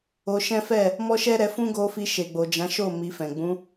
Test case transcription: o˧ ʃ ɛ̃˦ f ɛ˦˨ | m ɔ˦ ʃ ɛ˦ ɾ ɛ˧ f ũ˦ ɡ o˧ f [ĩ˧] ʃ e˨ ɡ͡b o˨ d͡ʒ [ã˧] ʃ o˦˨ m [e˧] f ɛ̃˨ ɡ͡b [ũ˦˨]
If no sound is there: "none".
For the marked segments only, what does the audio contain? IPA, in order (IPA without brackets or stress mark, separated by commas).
i˧, ã˨˦, i˧, ũ˨˦